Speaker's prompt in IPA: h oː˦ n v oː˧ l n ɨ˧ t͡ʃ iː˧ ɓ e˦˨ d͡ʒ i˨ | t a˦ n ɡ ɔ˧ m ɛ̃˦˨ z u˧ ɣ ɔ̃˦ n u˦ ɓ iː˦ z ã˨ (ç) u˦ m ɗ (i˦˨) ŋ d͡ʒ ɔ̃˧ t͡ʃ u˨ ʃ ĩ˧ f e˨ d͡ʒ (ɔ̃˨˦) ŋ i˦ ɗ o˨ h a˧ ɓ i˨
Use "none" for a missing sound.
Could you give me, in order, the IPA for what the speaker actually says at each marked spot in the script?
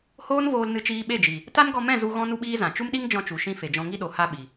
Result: t͡ʃ, i˦, ɔ̃˧

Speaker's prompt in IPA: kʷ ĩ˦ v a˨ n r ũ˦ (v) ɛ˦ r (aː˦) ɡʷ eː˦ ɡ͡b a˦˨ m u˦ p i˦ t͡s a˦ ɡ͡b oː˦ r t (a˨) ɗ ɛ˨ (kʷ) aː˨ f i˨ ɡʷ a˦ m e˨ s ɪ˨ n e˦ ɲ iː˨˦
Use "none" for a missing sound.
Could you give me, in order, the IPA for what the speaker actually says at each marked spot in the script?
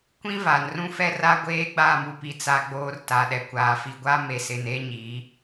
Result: f, a˦, a˨, kʷ

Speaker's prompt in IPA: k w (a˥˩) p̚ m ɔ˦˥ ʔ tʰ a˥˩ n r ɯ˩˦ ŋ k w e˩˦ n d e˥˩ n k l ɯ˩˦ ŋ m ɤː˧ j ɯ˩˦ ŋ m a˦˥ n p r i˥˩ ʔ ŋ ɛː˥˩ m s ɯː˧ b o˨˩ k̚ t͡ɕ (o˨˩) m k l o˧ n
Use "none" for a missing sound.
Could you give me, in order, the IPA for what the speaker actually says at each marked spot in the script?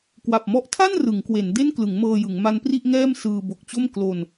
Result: a˨˩, o˥˩

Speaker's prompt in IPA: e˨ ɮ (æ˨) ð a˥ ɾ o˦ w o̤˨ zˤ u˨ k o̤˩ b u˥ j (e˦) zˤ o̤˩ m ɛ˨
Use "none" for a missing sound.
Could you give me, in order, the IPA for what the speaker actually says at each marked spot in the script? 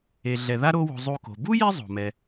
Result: ɛ˨, e˦

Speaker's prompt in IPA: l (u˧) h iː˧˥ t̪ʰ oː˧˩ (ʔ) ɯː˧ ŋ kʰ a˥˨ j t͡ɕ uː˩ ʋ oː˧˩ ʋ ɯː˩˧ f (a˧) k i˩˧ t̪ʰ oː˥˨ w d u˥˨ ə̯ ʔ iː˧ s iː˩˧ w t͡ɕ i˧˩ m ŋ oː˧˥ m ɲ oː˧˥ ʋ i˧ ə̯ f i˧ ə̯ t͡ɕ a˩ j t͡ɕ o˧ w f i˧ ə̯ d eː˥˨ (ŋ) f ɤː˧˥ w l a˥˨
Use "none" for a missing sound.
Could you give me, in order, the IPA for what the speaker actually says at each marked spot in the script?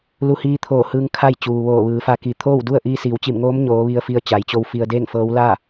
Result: u˧, h, a˧, ŋ

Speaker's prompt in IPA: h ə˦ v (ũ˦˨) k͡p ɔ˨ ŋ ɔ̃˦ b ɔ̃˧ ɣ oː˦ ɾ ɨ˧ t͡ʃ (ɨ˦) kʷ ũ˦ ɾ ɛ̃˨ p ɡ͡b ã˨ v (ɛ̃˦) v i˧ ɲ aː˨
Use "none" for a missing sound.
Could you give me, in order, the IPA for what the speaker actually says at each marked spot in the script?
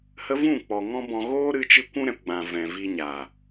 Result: ũ˦˨, ɨ˦, ɛ̃˨

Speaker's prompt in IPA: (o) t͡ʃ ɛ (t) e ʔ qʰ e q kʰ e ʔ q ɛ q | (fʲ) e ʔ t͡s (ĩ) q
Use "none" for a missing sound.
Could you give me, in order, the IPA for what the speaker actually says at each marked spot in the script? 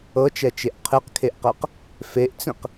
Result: ɤ, t͡ʃ, f, ĩ

